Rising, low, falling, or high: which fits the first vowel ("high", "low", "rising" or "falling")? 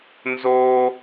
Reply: high